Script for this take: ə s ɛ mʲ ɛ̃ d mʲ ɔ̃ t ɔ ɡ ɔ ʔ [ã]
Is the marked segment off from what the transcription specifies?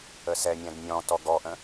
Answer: yes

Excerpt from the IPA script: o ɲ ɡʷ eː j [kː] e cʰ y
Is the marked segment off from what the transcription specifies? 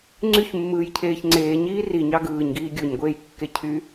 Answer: no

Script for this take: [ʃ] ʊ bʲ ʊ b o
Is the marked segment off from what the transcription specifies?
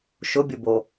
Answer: no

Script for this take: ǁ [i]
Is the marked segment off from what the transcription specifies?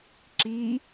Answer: no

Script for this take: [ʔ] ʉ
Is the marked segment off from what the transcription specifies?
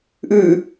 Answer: no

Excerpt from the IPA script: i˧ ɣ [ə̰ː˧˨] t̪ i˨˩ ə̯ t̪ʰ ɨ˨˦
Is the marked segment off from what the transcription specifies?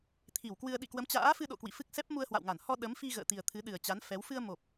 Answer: no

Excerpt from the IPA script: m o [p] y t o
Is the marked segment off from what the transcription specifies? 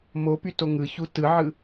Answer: no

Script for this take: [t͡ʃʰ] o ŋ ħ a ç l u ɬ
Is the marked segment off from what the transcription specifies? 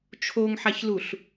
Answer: no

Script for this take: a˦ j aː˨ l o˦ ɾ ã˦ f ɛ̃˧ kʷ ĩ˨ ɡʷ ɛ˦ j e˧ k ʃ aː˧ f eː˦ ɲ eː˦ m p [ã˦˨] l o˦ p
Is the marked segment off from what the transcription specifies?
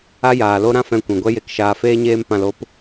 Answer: yes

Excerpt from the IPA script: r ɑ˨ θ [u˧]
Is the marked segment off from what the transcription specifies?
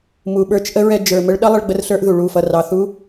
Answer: yes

